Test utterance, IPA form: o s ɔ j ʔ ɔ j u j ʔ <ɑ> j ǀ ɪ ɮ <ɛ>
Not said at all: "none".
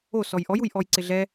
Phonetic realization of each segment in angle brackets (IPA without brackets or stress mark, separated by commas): ɔ, ɛ